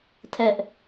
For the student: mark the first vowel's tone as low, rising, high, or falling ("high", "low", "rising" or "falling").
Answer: high